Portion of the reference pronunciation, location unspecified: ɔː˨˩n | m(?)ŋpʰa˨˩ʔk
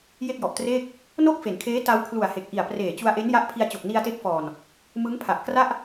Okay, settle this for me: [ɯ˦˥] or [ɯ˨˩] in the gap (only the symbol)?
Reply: ɯ˦˥